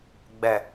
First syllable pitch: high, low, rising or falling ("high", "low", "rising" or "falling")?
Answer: low